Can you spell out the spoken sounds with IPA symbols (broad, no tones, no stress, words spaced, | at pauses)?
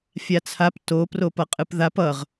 fʲat͡sʰap to propʌqʼɯpðap ʌʁ